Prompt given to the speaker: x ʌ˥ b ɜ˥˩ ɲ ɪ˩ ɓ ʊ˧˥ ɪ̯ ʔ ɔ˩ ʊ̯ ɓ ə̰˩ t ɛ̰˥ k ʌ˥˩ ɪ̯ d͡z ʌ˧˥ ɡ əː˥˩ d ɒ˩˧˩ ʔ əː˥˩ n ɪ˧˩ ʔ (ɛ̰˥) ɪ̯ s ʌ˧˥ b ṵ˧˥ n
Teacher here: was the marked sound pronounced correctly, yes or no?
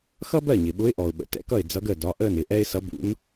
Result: no